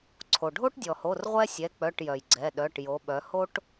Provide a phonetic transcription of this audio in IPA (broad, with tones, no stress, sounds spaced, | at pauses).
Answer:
ǀʰ o˩ ɖʱ o˦ ʈ dʲ ɔ˩ h o˩˧˩ r ʁʷ ɛ˦ sʲ ɛ˩˧˩ k͡p œ˩˧˩ ʈ j œ˩ j ɡ͡ǀ ɛ˩˧˩ ɗ œ˩˧˩ ʈ j o˩˧ ɓ œ˩˧ h o˦ ʈ